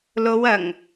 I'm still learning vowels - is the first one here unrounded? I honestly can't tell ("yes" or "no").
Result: no